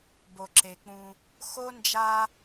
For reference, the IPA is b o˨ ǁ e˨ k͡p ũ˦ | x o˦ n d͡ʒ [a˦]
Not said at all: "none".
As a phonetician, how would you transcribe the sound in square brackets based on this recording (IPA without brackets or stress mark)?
a˦